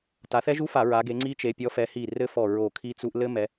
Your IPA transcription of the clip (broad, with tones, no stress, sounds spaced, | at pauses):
t a˨˦ θ ɛ˦˥ ʒ u˦˥ f a˧˩˧ ɹ a˨˦ ɡ e˨˦ ŋ͡ǀ i˦˥ t͡ʃ e˨˦ pʲ ɔ˨˦ f ɛ˨˦ h i˧˩ r ɘ˦˥ f ɔ˧˩ ɹ o˧˩ kʰ i˦˥ t͡s u˦˥ ʔ l ɘ˦˥ m ɛ˨˦